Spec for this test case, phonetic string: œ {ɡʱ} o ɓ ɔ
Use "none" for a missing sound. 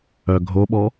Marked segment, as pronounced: ɡʱ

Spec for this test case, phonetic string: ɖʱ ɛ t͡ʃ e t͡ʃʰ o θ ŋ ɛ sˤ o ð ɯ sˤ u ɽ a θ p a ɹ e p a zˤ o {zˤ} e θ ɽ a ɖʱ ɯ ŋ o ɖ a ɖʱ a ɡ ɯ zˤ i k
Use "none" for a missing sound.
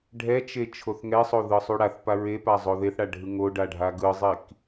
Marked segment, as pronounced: ð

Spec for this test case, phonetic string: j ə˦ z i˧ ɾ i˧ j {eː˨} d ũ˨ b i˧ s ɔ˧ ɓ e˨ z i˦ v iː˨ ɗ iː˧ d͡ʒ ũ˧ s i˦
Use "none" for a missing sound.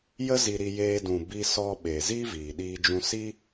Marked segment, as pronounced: eː˧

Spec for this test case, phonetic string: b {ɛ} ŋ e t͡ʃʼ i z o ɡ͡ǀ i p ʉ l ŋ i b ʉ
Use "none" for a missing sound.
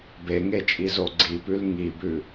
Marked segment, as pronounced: e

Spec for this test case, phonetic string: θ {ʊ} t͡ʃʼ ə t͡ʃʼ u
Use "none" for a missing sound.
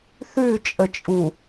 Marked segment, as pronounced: ʉ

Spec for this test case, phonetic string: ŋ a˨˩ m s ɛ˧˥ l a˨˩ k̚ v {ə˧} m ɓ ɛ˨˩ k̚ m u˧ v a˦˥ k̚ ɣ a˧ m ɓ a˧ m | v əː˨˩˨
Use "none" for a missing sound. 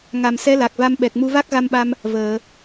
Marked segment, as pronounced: a˧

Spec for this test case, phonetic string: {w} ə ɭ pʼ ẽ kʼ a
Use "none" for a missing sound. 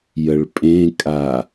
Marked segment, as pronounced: j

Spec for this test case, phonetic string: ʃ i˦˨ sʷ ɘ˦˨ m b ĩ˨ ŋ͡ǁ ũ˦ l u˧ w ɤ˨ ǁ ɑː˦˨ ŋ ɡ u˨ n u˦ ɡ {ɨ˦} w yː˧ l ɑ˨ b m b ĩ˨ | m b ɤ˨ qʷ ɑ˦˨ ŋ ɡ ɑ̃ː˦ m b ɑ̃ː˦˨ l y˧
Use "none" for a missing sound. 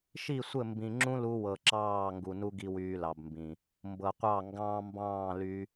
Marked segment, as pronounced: i˦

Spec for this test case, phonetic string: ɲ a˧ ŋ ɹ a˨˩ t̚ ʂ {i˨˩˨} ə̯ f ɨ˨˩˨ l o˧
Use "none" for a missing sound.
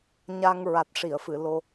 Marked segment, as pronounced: i˨˩˨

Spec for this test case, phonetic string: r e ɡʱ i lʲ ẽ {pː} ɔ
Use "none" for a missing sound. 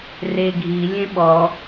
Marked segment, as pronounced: ɓ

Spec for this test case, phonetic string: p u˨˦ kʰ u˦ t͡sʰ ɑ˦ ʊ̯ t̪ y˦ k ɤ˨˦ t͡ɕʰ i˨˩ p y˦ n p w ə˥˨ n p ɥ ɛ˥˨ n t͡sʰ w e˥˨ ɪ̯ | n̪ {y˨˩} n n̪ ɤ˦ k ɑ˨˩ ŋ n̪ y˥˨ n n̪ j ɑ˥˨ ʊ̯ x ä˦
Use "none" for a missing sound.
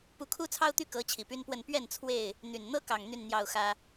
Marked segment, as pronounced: y˨˩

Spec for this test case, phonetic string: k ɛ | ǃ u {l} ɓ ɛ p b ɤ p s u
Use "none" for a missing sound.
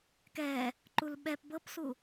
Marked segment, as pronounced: l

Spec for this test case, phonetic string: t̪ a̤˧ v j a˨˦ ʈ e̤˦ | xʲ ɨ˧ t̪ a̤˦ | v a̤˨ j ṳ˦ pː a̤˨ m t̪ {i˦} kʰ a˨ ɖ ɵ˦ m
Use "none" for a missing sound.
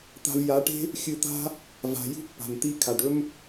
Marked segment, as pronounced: i˦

